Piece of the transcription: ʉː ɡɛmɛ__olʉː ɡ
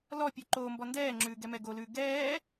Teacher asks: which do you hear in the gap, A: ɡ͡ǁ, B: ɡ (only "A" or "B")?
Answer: B